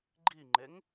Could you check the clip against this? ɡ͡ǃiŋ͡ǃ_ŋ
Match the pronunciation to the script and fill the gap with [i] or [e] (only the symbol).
e